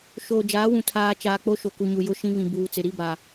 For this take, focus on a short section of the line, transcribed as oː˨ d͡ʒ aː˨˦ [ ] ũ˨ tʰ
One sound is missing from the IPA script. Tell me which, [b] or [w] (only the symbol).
w